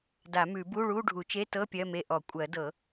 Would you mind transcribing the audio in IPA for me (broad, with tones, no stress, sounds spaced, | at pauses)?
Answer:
d a˨˩˦ m ʉ˨˩˦ b u˧˥˧ ɭ u˧˥˧ ɖʱ u˨˩˦ t͡ʃ e˧˥˧ t ɤ˧˥˧ pʲ ɜ˧˥˧ m e˧˥˧ ʔ ɔ˨˩˦ kʷʼ ɜ˨˩˦ d ɤ˨˩˦